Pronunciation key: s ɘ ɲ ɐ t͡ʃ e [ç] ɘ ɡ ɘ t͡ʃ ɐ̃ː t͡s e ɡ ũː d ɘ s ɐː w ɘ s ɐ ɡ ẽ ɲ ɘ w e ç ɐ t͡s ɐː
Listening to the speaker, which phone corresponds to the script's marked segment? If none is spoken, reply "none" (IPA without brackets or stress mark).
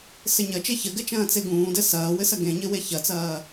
ç